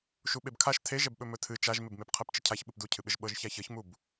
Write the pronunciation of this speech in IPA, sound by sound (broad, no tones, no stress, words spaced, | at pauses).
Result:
ʃuɓebkʰaʃ tʰeʒɛbɓɵ mɵtʰɨ t͡ʃaʒmɪbmep qʰɛpt͡ʃɪcʰaç ɓɨpducʰɨɓɪʒ ɓɤʒçaçɤçmub